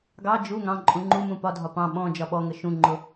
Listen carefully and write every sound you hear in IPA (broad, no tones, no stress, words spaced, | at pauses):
ɡɑ d͡ʒu ŋɑ̃ǃʼũ ŋ͡ǃumũ pɒdʱɒ pɑ̃ ɓɔ̃ d͡ʒɒɓɔŋə ʃũŋ͡ǃʊ